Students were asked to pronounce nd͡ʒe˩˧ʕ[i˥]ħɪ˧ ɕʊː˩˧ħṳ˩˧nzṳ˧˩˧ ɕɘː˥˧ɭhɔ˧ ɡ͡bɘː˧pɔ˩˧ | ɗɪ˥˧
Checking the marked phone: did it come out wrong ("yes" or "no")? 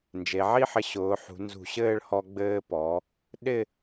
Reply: no